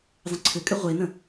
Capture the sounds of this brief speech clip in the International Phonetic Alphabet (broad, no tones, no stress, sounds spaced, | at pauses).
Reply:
zˤ ə̃ ǀʰ ɘ kʼ ɘ ʁʷ e n ə̃